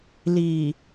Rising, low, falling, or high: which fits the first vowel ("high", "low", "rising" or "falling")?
low